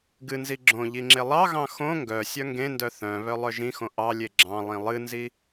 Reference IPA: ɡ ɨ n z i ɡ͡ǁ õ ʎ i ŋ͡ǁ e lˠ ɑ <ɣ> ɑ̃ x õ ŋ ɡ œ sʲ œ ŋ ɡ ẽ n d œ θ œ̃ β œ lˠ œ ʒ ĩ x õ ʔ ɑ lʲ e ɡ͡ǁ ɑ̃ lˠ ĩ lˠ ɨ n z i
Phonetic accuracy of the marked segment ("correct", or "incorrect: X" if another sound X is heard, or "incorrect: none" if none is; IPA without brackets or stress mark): correct